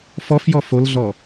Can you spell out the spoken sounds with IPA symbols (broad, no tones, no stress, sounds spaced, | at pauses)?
f ɔ f j ɔ f o l ɮ ɔ